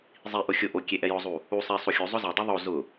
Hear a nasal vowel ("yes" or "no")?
no